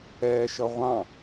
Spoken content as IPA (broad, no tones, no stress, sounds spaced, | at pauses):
ɛː ʃ ʌ ʁʷ ɑ̃